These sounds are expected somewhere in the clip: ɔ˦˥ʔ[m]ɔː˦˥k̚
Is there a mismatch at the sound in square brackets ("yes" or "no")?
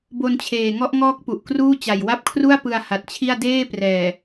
yes